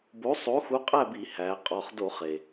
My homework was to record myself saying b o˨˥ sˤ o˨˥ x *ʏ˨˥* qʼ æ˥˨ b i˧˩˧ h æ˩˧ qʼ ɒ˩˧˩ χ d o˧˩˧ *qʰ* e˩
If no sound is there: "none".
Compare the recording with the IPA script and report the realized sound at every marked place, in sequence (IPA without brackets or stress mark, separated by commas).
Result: u˨˥, χ